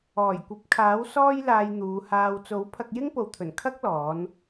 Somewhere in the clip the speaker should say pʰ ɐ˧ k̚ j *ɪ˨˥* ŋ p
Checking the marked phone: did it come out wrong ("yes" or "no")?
yes